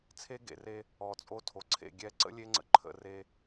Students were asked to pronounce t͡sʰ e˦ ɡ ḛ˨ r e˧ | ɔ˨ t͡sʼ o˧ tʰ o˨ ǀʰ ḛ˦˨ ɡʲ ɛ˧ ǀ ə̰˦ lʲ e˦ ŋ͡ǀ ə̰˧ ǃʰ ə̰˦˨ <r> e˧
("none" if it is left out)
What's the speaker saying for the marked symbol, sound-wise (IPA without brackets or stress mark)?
r